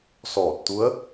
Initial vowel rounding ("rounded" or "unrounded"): rounded